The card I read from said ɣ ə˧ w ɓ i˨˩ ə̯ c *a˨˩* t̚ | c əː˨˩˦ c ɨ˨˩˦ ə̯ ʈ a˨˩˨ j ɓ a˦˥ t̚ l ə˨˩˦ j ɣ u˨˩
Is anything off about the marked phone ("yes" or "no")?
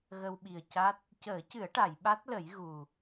yes